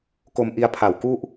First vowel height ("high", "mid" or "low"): mid